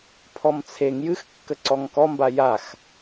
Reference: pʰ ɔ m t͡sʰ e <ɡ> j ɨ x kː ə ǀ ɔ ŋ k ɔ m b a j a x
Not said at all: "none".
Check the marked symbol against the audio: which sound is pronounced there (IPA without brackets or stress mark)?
ŋ